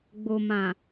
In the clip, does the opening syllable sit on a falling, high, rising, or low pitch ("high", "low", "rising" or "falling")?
low